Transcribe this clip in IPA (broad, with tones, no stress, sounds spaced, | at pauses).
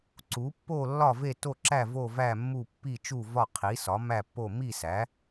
ǀ u˨˥ pː o˥˧ lː ɒ˥˧ v e˥˧ t o˥˧ ǁ æ˥˧ v o˥˧ v æ˥˧ mː u˥˧ pː i˥˧ t͡ʃ u˥˧ v ɒ˥˧ qʰ i˨˥ s ɒ˨˥ m æ˥˧ pː o˥˧ m i˥˧ s æ˨˥